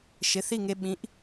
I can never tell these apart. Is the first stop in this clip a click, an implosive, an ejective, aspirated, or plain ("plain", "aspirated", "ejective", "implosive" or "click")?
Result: implosive